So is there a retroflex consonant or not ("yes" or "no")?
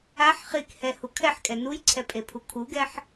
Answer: no